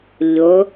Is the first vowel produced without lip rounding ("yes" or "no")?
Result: no